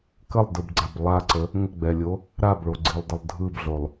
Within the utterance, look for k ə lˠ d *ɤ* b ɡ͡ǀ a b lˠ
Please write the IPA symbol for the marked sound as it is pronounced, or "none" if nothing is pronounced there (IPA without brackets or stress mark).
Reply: ɯ